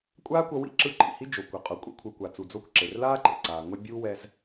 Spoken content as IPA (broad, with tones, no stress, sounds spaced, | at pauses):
kʷʼ aː˥ kʷ ʌ˧ w ḭ˥ ǁ ɯ˧ ǃ ḭ˩ h i˥ d͡ʒ o˩ kʷ ʌ˩ qʼ o˩ kʷʼ ḛ˧ kʷʰ ɯ˩ kʷ a˩ t͡s u˩ d͡z o˧ kʷ ǁ e˩ r l aː˥ ǃ ḛ˩ ǀ aː˩ ŋʷ e˧ bʲ uː˥ w ɛ˧ z